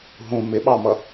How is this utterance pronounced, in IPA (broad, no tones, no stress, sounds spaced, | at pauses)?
ɦ ũ m ɪ ɓ ɑ m ʌ